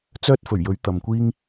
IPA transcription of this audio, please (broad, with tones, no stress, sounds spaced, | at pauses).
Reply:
t͡s œː˥ t̚ f ɵ˨˩ ɥ j ɵ˨˥ ɥ t̪ ɐ˨ m kʷ iː˥ ŋ